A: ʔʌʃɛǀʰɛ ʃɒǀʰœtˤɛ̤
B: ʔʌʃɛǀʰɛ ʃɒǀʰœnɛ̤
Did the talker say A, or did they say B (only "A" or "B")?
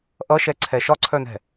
B